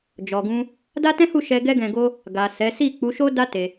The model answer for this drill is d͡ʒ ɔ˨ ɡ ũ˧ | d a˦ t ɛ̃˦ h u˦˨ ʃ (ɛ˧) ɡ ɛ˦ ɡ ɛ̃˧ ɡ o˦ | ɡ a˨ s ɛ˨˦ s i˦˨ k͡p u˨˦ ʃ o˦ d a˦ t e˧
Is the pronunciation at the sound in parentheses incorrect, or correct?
correct